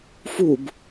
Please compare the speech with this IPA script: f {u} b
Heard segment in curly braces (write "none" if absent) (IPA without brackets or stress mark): u